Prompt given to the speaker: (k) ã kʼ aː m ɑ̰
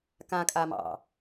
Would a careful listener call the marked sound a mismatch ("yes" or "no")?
no